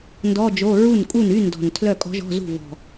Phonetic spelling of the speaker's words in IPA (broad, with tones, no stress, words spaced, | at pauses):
ndɔ˧˥˧d͡ʒo˧˥˧ ɹu˥˩nkʼu˥˩ny˧˥˧ndɔ̤˨˩n tʰlœ˥˩kʼɔ̤˧˥ʒɔ̤˧˥˧zṳ˥˩ vɔ̤˨˩